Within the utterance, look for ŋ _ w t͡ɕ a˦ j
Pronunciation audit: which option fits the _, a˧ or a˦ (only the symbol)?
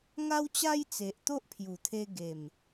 a˦